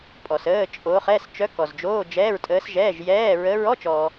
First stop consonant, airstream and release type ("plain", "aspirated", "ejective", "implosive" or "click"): ejective